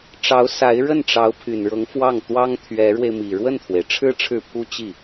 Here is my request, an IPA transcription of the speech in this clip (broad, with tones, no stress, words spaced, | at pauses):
ʈ͡ʂɑ˧˥ʊ̯ sa˧˥ɪ̯ɻə˥˩n ʈ͡ʂɑ˧˥ʊ̯pʰy˨˩nɻɤ˧˥ŋ fwɑ˥˩ŋt̪wɑ˥ŋ t̪ʰɥɛ˧˥ɻwe˧ɪ̯mi˨˩ ɻwə˥˩nt̪ʰwe˩ɪ̯ʈ͡ʂʰɻ̩˥ ʈ͡ʂʰɻ̩˥˩pʰu˥ t͡ɕi˥˩